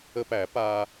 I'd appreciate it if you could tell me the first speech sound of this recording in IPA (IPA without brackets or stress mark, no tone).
ə